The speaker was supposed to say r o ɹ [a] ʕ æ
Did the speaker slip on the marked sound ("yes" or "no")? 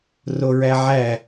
yes